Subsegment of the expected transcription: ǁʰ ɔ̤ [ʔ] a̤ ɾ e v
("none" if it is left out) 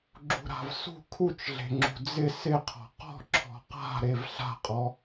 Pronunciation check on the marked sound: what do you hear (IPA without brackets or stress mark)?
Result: q